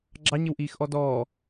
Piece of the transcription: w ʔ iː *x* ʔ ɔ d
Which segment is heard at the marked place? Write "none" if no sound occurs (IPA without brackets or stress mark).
x